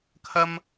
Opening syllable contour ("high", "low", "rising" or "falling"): low